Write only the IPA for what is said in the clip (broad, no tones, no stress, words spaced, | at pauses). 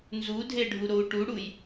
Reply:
nzudʱeɖʱuɾou̯ ʈuɽuj